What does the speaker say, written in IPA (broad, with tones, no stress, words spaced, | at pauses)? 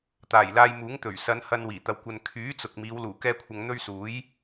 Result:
t̪aː˨˩jlaː˧jmuː˨˥ŋt̪ɵ˨˩ɥ sɐ˨˧n hɐ˧n wiː˨˩t̪ɐ˨˧w kʷɐ˨n kʰyː˨˥t͡sʊ˨k̚ miː˨˧wluː˨˩ kɛː˥kʷʰɐ˧ŋ n̪ɵ˥ɥ suː˨˥j